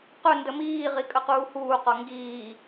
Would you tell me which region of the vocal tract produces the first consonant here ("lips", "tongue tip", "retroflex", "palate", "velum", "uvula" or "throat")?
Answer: uvula